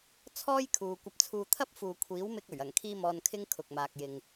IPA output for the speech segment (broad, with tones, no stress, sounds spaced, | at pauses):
t͡sʰ ɔː˥ j kʰ uː˨ kʷ ɐ˧ p̚ t͡sʰ uː˧ t̪ʰ ɐ˥ p̚ f uː˨ kʷʰ iː˨˥ w m ɪ˧ k̚ ɵ˨˩ ɥ ɐ˨˩ ŋ kʰ iː˥ m ɔː˧ n kʰ ɪ˥ ŋ kʰ ʊ˨ k̚ m aː˨ k̚ j ɪ˨ ŋ